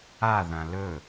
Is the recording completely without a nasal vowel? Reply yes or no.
no